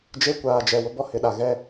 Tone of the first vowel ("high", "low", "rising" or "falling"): high